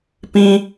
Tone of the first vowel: high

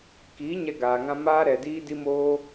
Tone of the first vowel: rising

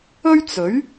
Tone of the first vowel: high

